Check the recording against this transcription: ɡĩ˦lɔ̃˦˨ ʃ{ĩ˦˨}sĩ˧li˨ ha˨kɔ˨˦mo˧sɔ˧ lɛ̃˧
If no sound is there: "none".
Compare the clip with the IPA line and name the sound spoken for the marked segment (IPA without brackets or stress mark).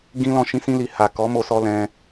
ĩ˧